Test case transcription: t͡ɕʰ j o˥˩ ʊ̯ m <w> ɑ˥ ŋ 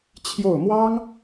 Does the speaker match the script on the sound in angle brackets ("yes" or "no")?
yes